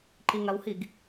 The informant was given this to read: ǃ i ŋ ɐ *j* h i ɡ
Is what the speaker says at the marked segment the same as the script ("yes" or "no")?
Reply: no